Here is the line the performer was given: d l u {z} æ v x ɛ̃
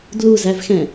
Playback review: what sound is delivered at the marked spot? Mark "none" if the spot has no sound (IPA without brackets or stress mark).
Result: z